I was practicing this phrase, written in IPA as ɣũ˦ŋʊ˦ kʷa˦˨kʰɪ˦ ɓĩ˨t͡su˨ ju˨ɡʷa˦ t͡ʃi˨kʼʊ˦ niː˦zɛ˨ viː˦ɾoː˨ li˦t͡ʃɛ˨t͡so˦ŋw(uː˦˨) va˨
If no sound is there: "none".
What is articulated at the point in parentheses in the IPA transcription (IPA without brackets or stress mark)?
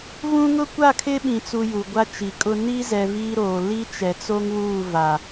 uː˦˨